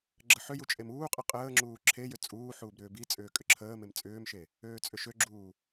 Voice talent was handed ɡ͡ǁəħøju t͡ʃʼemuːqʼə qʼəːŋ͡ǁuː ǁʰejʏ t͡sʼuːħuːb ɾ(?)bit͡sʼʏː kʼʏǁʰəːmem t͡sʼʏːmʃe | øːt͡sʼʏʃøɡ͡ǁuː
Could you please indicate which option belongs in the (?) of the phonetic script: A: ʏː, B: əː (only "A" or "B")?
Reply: A